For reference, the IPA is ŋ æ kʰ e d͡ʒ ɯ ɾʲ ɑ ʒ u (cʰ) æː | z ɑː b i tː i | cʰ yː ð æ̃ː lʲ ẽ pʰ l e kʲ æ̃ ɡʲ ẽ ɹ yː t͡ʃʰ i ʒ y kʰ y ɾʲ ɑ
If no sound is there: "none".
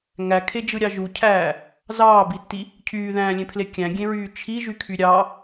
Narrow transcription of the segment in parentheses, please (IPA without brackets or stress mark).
cʰ